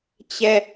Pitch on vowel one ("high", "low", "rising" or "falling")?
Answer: falling